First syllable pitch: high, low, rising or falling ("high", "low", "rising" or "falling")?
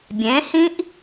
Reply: rising